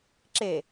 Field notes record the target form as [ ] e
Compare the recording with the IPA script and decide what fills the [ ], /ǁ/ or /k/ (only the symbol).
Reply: ǁ